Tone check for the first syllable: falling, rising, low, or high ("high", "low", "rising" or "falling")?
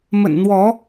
low